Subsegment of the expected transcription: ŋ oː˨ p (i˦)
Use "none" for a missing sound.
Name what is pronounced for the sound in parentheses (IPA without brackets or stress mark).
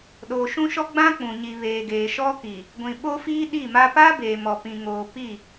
i˦˨